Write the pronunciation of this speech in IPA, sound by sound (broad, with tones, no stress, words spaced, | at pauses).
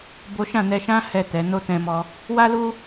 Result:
bo˦ ʃã˦˨nɛ˧ʃã˦ hɛ˦˨tɛ˨˦ no˦tɛ̃˧mɔ˧ | wa˦lu˦